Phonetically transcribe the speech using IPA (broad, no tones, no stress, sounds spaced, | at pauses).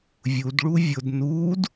vʲ u d ɭ u vʲ ʊ d n uː d